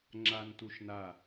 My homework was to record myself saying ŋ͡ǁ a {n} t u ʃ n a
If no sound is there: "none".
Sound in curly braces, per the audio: n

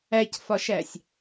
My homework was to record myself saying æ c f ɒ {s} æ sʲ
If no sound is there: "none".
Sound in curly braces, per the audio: ʃ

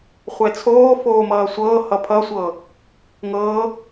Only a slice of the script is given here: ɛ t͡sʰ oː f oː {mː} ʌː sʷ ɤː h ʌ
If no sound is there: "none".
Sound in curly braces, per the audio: m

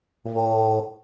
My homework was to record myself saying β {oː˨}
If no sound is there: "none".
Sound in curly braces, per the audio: oː˦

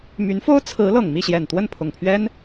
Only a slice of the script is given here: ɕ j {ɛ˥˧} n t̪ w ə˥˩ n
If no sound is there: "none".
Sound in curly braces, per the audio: ɛ˨˩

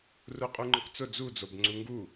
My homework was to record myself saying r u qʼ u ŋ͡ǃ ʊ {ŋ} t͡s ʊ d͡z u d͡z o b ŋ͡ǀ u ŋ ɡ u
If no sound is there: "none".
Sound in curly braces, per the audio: q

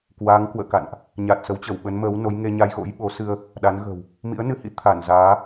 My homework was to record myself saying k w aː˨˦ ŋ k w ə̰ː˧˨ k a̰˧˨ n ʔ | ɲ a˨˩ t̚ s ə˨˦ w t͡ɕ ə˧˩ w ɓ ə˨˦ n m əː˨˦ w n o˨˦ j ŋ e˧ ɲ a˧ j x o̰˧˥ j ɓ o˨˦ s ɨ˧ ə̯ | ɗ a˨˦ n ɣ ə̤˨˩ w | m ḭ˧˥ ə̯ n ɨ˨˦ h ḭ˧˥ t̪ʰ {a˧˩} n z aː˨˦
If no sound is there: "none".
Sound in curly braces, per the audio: a˧˩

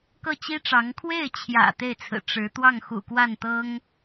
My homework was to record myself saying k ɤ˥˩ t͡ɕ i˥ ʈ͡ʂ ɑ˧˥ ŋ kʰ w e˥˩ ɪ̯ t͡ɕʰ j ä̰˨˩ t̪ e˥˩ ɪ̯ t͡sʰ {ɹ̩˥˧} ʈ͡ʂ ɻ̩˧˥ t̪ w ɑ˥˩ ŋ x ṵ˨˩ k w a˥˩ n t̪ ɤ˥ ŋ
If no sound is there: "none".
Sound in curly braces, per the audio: ɹ̩˨˩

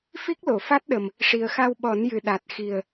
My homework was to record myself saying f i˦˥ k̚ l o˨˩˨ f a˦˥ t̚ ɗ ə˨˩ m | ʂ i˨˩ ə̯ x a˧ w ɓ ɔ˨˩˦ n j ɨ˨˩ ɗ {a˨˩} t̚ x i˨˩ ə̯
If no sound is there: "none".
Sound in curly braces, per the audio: a˨˩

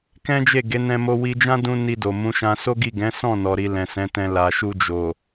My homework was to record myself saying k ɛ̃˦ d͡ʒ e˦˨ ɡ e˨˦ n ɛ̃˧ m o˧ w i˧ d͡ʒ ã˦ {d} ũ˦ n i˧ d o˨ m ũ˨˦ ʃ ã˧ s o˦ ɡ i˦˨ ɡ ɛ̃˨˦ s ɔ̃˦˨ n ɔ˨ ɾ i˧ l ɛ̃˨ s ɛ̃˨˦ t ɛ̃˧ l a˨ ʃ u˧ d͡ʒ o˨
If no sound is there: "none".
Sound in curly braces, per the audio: d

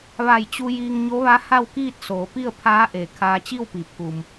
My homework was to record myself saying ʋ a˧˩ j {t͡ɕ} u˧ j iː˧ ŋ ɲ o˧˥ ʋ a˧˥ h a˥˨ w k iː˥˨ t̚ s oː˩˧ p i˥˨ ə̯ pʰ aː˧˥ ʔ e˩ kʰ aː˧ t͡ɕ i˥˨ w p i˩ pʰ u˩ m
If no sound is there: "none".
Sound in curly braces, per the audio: t͡ɕ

